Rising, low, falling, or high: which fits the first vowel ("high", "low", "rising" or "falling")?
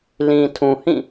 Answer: low